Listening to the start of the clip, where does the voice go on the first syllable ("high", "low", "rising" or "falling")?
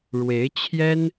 rising